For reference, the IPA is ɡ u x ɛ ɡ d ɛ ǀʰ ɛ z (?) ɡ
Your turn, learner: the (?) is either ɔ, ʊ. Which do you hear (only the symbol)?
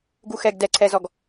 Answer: ɔ